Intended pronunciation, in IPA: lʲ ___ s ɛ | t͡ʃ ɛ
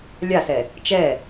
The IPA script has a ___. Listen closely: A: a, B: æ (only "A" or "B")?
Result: A